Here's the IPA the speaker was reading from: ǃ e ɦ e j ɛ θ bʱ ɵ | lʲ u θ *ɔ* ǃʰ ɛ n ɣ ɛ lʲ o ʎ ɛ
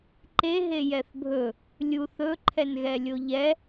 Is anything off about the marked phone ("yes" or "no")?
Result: yes